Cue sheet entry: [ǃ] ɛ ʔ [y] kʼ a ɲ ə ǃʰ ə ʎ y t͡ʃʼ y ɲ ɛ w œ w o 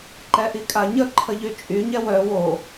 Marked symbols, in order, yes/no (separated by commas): yes, no